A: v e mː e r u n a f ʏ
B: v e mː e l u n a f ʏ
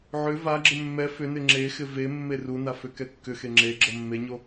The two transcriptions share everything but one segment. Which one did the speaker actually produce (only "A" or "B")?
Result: A